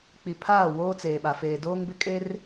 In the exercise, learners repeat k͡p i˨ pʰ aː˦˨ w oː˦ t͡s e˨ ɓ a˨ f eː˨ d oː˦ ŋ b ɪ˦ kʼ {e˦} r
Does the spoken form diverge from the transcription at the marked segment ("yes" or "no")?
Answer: no